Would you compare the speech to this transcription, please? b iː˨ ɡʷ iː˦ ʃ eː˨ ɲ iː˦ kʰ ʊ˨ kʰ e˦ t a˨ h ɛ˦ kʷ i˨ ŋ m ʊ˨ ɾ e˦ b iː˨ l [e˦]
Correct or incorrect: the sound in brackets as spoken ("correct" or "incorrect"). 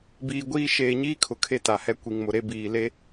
correct